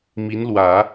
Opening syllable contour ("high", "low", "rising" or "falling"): rising